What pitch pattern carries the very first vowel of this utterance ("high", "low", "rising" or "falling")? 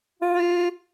high